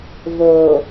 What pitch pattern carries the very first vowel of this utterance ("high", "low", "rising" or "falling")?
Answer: low